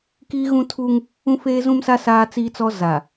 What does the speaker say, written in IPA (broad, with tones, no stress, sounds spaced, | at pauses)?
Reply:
k iː˦ ɣ ũ˦ tʰ uː˦ ŋ | ũ˦ f eː˦ z ũ˦ m s a˦ s aː˦ t͡s iː˦ t͡s ɔ˦ z a˨